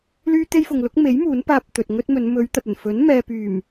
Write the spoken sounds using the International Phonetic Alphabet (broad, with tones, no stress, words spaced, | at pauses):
lyː˥t̪e˥jfʊ˨ŋ lʊ˨˥k̚me˨˥j muː˨˥npaː˧p̚ t̪ɵ˨t̚ŋɵ˥t̚mɵ˨˧n mɵ˨˧ɥ t̪ɐ˨t̚ɵ˨˩n fɵ˨˥nmɛː˨pyː˨˩m